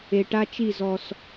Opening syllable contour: low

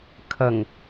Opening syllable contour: low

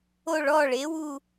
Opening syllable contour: falling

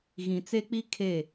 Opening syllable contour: low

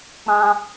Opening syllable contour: high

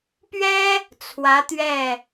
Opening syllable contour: high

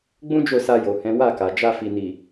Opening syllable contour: high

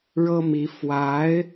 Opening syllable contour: high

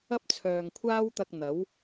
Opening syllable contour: high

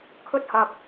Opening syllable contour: high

